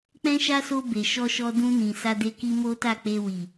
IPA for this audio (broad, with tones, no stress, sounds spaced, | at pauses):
k͡p ɛ̃˦ ʃ a˦ s o˧ b e˨ ʃ ɔ˧ ʃ ɔ˧ d ũ˧ n ĩ˨ s a˧ d e˧ k i˧ m o˦ t a˦˨ k͡p e˧ w i˨